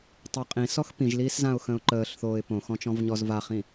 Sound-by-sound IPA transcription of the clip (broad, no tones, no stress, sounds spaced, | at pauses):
tˤ əː qʼ ĩ s ɔ x p ĩ ʒ l iː s z ã ʊ̯ x ə̃ ʊ̯ ǃ əː ɬ θ oː ɪ̯ p õ x ɔ̃ t͡ʃ ɔ̃ v ɲ ɔ z v a χ ĩ